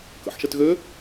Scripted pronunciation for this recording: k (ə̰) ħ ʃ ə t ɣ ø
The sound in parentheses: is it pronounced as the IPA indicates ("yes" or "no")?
yes